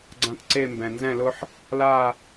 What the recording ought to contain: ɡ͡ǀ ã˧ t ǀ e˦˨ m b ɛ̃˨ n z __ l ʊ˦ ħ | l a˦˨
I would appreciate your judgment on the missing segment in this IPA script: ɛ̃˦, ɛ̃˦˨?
ɛ̃˦˨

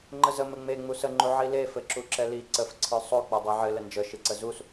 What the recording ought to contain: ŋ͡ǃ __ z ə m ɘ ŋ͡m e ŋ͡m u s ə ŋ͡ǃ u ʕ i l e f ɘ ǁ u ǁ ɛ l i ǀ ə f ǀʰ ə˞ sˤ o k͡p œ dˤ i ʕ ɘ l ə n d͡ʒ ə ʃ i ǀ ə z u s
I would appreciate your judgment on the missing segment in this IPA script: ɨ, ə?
ə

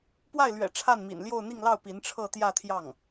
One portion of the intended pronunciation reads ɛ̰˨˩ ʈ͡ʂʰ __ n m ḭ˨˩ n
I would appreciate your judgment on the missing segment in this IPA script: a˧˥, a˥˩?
a˥˩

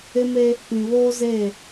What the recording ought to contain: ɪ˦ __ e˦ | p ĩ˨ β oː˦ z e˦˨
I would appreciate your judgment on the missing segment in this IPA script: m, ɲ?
m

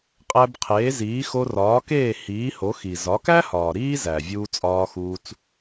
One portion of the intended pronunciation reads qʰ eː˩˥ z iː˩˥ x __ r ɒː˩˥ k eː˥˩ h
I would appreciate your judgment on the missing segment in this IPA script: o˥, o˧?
o˧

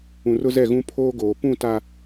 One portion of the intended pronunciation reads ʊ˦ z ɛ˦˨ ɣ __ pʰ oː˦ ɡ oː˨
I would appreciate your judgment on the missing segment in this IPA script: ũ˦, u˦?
ũ˦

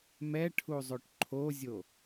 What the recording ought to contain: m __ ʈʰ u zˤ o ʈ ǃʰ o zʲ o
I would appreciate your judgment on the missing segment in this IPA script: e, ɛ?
ɛ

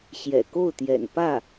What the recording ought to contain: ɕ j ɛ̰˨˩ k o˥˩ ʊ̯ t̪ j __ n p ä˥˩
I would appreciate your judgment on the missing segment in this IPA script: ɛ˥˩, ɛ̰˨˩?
ɛ̰˨˩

